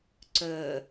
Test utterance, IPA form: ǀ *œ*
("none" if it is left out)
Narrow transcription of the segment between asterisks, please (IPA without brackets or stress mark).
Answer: œ